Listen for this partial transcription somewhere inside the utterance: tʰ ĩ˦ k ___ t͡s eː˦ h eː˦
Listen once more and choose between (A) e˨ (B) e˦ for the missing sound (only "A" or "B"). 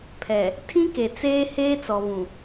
A